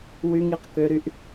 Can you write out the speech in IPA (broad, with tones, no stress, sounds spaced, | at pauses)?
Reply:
w y˦ ŋ i˨ q k ø˦ ɾ y˦ ʔ